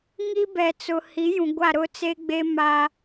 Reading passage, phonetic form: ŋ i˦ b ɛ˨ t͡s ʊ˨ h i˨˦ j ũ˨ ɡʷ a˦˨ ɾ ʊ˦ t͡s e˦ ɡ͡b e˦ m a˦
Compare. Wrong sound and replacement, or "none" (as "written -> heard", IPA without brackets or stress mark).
none